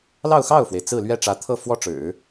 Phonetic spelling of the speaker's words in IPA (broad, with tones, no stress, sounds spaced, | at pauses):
l ɑ˥˧ ʊ̯ x ɑ˥˩ ʊ̯ f w e˩ ɪ̯ t͡s ɹ̩˥˧ l ɥ ɛ˥˩ ʈ͡ʂ ä˧˥ t̪ʰ ɤ˥˩ f w ɔ˥ ʈ͡ʂ ɻ̩˨˩˦